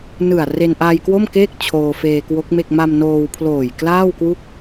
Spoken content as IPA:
nɯ˨˩a̯re˧n ʔaː˧jkwo˥˩m keː˥˩k̚ t͡ɕʰoː˧feː˧kwo˦˥k̚me˥˩k̚ ma˧m noː˧wpʰloː˨˩j klaː˥˩wkwu˥˩k̚

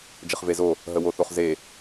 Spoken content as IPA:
d͡ʒəχvezo | ɦəwoθoχze

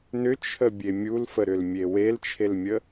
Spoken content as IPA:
nʏt͡ʃʰəbʲe mʲulfəɾʏlmʲe welt͡ʃʰelmʲə

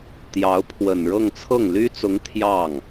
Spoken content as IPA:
t̪jɑ˧˥ʊ̯pʰwə˨˩n ɻɤ˥˧ŋt͡sʰɤ˥˩ŋ ly˥t͡sʊ˧˥ŋ t̪ʰjɑ˥˩ŋ

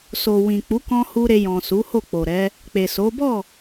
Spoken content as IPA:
so˨wĩ˨k͡pu˨˦ kɔ̃˦hu˦ ɾe˧jɔ̃˨su˨˦ ho˦˨k͡po˨ɾɛ˨˦ | k͡pe˨so˨˦ bɔ˦˨

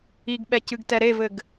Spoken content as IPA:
iɡɓɛcɨɡtɛ ɾevɘɡ

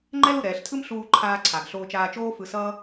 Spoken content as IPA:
ŋ͡ǃɛ˥lu˩ɾɛː˩ɬtʰɯ˥m ɬuː˧ǃʰaː˧ǀʰa˩ɡ ɬoː˧t͡ʃaː˧t͡ʃoː˥ fɯ˧sʌː˥

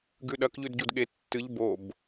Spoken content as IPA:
ɡʉɗɐk ʎʉdɟudɠe tːɨʎ bob

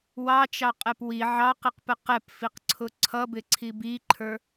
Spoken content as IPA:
wɑt͡ʃɑqʼɛp wi ʕɑqiqpə qɛpfiqǀʰʊ ǀʰʌbɪǀʰi biǃʰə˞

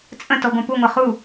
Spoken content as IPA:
t͡sʼə̃tɔɡʷɐ̃ puŋʷɐ χu

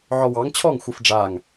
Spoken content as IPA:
ʕɔwɑŋ t͡ɕʰɔŋ xʷɯfɖ͡ʐaŋ

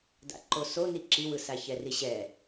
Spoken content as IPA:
da̰ǃosoni ǁiwɯsa çɛriɕɛ

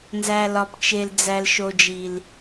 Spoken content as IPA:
nzæ˨lɒ˨pt͡ʃe˨l d͡zæ˨lʃo˨d͡ʒi˨l

